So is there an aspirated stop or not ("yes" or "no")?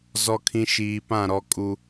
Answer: yes